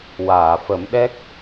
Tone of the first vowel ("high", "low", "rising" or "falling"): low